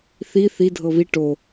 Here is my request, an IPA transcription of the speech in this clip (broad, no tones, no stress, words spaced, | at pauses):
θi θi dʱɤβi ʈo